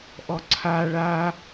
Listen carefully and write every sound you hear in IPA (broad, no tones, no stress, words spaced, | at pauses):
ʔɔǀʰa ɭa